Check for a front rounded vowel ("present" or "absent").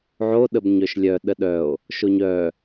present